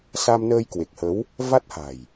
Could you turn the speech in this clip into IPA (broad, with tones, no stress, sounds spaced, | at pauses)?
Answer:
s a˧ m n əː˧ j k w e˨˩ k̚ h ə˨˦ w | v a˦˥ t̚ h a̤˨˩ j